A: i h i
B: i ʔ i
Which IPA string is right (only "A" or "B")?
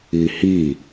A